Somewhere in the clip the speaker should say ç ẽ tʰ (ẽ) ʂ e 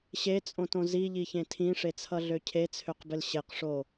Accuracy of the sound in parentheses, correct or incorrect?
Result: incorrect